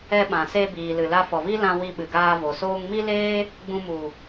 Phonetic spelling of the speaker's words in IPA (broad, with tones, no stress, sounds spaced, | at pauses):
ɛ˧ ɓ ã˨ s e˧ b iː˨ l ɨ˨ l a˧ f ɔ˨ v i˦ l ã˧ w i˧ ɓ ɨ˨ ɡ aː˧ v o˨ s oː˧ ŋ m i˦ l eː˦ | ɡ͡b ũ˧ m u˨